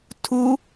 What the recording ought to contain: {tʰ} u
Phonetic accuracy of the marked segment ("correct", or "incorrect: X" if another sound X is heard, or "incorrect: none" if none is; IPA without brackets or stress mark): correct